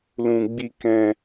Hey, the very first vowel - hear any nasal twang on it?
yes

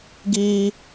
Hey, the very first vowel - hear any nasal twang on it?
no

